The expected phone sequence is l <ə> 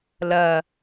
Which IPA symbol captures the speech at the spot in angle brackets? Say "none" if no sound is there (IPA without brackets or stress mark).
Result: ɐ